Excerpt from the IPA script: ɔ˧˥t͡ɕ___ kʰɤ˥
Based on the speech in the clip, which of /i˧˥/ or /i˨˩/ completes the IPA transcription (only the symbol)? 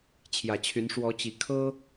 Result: i˨˩